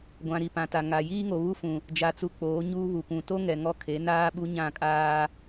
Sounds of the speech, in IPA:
ɡʷ ã˨ ɾ i˨ p ã˨ t a˨ ŋ a˨ j iː˦ ŋ o˨ β u˦ f ũ˨ | d͡ʒ a˨ t͡s u˨ k͡p oː˨˦ ɲ uː˦ β u˨ kʷ ũ˨ t o˦ ŋ ɛ˨ ŋ ɔ˦ kʰ e˨˦ n aː˦ ɓ u˦ ɲ ã˦˨ kʼ aː˦

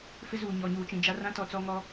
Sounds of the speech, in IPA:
f ɪ˦ z uː˨ ɲ ɔ˨ ɲ uː˨ t͡ʃ ĩ˨ d͡ʒ a˦ r ã˦ t ɔ˨ t͡s ɔ˦ ŋ ɔ˦

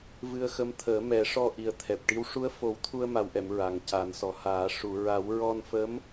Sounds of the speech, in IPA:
v ɨ˧ ə̯ x ə˧˥ m t̪ʰ əː˨˩˦ m ɛ˨˩˦ ʂ ɔ˧ ʔ i˨˩ ə̯ t̪ʰ ɛ˨˩ p̚ ʈ i˧˥ w ʂ u˧˥ ə̯ f o˨˩˦ w t̪ʰ u˧ ə̯ m a˨˩ w ʔ ɛ˨˩˨ m ɹ a˨˩ ŋ c a˨˩˦ n s ɔ˨˩ h aː˨˩˦ ʂ u˨˩˨ ɹ a˨˩˦ w ɹ ɔ˧ n f ə˧˥ m

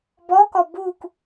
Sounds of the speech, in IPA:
b ɔ k ɔ b u k

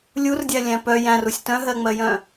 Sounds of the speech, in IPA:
lʲ u r dʲ æ lʲ æ̃ p œ j æ̃ r u sʲ t œ̃ ɦ ɜ ŋ͡m ɜ j œ̃

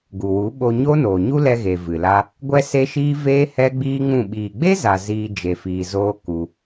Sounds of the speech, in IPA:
ɡ u˨ w u˨˦ ɓ o˧ ɲ o˦ n oː˨ ɲ u˦ l ɛ˧ ɣ e˨ v ɨ˨ l a˦ | ɡʷ ɛ˦ s e˦ ʃ iː˦ v eː˦ h ɛ˦ ɡ͡b iː˦ ŋ ũ˦˨ ɓ iː˨ ɡ͡b e˦ z a˨ z iː˧ d͡ʒ e˧ f iː˧ z oː˦ k u˧

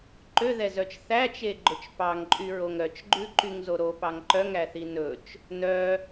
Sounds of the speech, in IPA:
ǃ ø ð ɛ z œ t͡ʃ θ æ t͡ʃ e ɡ͡ǃ ɵ t͡ʃ p ɑ ŋ ǃʼ y ɹ o ŋ ɾ œ t͡ʃ ɡ͡ǃ ʉ ǃ y ŋ z o ɾ o p ɑ ŋ ǃ œ ŋ æ θ i n ɵ t͡ʃ | n œ

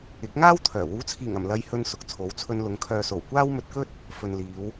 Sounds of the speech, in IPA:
ɪ˨˥ k̚ ŋ aː˥ w t̪ʰ œː˨˩ w uː˨˥ t͡sʰ iː˨˩ ŋ ɐ˨˩ m l ɐ˧ j h ɵ˧ n s ʊ˨ k̚ t͡sʰ o˨˥ w t͡sʰ ɵ˧ n l ʊ˨˧ ŋ kʰ œː˨ s o˨˩ w kʷ aː˥ w m ɵ˧ t̚ k ɵ˥ t̚ | f ɵ˨ n l iː˨˧ w

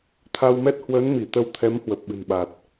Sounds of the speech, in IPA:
t̪ʰ a˧ w m ɛ˦˥ t̚ h w əː˨˦ n m i˧˩ t̪ ə˧ w t̪ʰ ɛ˨˦ m h w ə˨˩ p̚ ɓ ɨ̤˨˩ n ɓ a˨˩ t̚

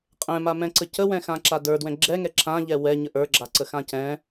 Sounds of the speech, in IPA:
qʼ ɛ̃ m a m ɛ̃ ǀ ə c ə w ɛ̃ x ã ǁ a d ə˞ d w ɛ̃ ɡ͡ǁ ɛ ŋ ɛ ǁ ã ʎ ɛ w ɛ ɲ ə ʔ ə˞ ɡ͡ǁ a ǀ ə x ã c ɛ̃

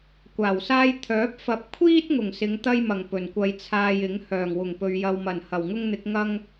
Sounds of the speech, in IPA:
kʷ aː˨˩ w s aː˥ j t̪ʰ œː˨˥ p̚ f ɐ˨ p̚ kʷʰ iː˥ t̚ ŋ ʊ˨˩ ŋ s ɪ˨˧ ŋ t̪ ɐ˥ j m ɐ˨˩ ŋ p ɵ˨˩ n kʷ ɐ˧ j t͡sʰ aː˧ j ɪ˨˥ ŋ h œː˨˩ ŋ w ʊ˨˩ ŋ p ɵ˨ ɥ j ɐ˧ w m ɐ˨˩ n h ɐ˨˩ w ŋ ʊ˥ ŋ n̪ ɪ˨˥ k̚ ŋ ɐ˥ ŋ

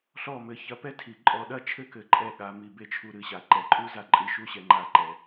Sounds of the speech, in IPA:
ɬ ɔ˧˩ m ɘ˩˧ ç ɐ˧ p ɛ˥ tʰ i˩˧ ǃʼ ɔ˧ ɗ ɐ˥˧ t͡ʃʰ ɘ˥ k ɘ˩˧ ǃʼ ɛ˧˩ ɠ a˩˧ m i˧˩ b e˥˧ t͡ʃʰ u˧ ɾ ɨ˩˧ ɕ a˩˧ ǃ ɛ˩˧ ǃʼ u˥ z a˧˩ ǃʼ ɨ˧˩ ʃ u˥˧ ɕ ɛ˧ ŋ͡ǃ a˧˩ ǃ ɛ˩˧

